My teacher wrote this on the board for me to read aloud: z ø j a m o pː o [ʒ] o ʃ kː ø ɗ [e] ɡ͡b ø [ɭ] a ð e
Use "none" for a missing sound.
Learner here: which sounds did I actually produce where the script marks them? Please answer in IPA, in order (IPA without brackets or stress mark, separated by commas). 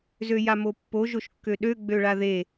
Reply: ʒ, ø, ɭ